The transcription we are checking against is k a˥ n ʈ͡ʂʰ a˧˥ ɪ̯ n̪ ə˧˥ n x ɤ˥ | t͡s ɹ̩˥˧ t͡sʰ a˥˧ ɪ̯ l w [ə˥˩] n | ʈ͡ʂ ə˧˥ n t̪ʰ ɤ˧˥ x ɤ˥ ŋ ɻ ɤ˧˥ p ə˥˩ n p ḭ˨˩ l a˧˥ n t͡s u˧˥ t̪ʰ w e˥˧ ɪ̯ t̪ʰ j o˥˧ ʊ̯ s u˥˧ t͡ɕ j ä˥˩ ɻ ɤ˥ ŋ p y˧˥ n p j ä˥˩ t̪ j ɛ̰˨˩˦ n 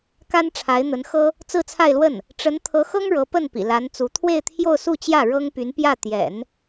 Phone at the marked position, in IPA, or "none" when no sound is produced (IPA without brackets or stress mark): ə˥˩